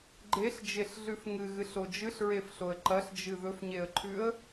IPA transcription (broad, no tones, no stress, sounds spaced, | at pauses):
ɡ͡ǃ e ɬ d͡ʒ e ɬ ɮ ʉ f ŋ ɨ ɣ ɨ ɬ o d͡ʒ ɨ ɬ ɹ e f ɬ o ə̯ ǃ ɐ ɬ d͡ʒ ɨ ð ɵ f ɲ e ə̯ ǃʰ ʉ ə̯